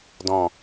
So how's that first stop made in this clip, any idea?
plain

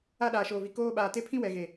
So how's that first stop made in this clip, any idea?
implosive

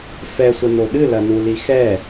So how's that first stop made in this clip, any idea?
implosive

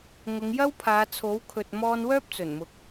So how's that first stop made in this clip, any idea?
aspirated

